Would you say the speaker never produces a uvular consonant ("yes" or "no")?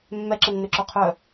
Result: no